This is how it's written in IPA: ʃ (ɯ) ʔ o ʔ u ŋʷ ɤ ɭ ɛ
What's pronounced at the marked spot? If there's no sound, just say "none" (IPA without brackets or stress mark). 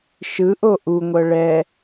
ɯ